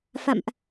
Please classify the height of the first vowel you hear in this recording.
low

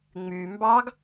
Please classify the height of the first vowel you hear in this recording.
high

